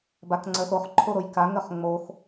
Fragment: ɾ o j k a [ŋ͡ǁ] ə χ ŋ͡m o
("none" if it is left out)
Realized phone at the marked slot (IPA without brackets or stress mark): ŋ